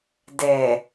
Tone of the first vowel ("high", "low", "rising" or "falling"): low